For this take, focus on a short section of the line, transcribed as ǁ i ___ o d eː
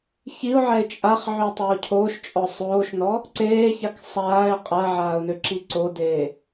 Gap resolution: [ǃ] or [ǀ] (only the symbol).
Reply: ǀ